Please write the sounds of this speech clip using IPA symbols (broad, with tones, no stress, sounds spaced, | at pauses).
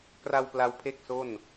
k r a˧ w p l a˧ w pʰ e˥˩ k̚ s o˥˩ n